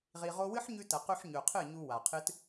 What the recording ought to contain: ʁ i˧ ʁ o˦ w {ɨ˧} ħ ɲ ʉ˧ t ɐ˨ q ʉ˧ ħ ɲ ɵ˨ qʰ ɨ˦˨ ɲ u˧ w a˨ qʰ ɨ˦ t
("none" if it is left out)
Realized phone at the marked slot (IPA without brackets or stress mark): ɨ˦